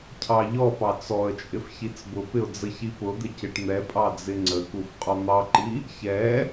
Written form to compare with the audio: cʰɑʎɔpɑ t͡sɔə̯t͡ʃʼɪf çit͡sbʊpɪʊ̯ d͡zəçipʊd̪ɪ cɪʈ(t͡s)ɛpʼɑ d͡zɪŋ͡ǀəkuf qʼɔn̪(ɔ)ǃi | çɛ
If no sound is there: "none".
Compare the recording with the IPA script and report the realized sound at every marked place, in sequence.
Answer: n̪, ɑ

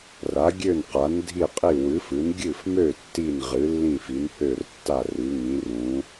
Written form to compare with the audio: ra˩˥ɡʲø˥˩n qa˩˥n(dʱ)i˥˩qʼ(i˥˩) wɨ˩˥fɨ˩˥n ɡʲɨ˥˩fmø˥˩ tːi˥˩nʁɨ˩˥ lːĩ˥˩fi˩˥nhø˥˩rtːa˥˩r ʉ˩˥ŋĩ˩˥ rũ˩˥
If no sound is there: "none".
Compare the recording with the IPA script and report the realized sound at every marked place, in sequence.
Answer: dʱ, i˥˩

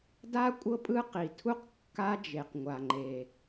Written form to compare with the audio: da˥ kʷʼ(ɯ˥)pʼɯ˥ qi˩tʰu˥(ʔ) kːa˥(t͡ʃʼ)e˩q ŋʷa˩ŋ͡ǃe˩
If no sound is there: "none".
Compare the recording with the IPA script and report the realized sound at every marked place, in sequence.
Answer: ɤ˥, q, d͡ʒ

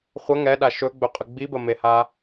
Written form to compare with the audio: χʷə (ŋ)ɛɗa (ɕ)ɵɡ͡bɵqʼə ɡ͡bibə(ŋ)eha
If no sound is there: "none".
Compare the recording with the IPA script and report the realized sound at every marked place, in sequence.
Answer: ŋ, ʃ, m

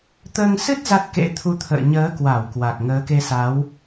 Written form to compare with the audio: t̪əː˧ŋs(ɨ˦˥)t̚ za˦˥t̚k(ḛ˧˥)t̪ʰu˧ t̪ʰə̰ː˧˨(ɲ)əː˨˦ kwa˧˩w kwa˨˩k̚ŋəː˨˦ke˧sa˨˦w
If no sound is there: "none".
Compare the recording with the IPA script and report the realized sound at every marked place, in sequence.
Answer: ɨ˦˥, ḛ˧˥, ɲ

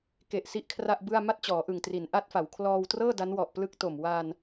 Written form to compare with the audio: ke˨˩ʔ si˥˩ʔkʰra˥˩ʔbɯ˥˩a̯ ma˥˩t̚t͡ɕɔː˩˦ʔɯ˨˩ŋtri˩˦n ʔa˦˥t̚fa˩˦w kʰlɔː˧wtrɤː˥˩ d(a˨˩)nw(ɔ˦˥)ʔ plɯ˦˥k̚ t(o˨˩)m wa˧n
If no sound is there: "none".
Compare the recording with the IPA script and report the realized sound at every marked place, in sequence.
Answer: a˦˥, ɔ˨˩, o˨˩

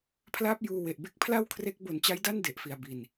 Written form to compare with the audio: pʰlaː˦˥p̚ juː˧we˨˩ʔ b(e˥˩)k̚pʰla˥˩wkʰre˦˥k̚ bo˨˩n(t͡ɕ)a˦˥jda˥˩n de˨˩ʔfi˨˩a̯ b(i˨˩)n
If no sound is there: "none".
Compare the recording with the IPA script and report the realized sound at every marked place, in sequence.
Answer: e˥˩, t͡ɕ, i˨˩

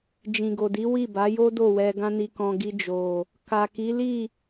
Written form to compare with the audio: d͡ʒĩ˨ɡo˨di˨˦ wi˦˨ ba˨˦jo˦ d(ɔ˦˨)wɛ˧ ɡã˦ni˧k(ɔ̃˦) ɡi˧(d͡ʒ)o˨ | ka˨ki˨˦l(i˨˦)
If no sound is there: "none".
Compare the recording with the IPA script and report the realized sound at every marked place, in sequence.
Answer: o˦˨, ɔ̃˧, d͡ʒ, i˦˨

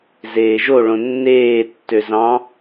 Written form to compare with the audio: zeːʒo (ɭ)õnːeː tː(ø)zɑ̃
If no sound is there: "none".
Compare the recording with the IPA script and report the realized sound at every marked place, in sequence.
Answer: ɭ, ø

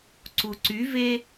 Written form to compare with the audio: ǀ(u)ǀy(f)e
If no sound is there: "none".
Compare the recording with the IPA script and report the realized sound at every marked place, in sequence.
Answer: u, v

